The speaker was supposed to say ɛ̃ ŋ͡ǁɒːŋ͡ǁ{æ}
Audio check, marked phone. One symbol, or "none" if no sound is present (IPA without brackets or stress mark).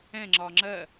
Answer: ɜ